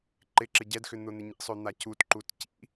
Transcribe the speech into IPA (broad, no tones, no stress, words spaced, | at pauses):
ǃɪǁɪ ɟɛdxʏ n̪ʊn̪ɪɲḭsˤø n̪acutǃut cḭ